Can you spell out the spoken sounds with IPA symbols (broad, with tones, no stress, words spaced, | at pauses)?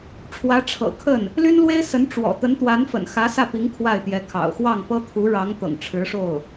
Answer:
ʈ͡ʂʰwä˧˥ʈ͡ʂʰɤ̰˨˩kʰə˥˩n | ly˥nlwe˥ɪ̯sə˧˥n ʈ͡ʂwɔ̰˨˩ t̪ə˧˥nt̪wa˧˥nfə̰˨˩nxä˧˥ sä˥˩pi˧˥ŋ kʰwa˥˩ɪ̯t̪jɛ˧˥kʰɑ̰˨˩ʊ̯ xwɑ˥˩ŋpɤ˥ t̪ʰu˧˥ɻɑ˧˥ŋ t̪ɤ̰˨˩ŋʈ͡ʂʰɻ̩˧˥ʂo˥˩ʊ̯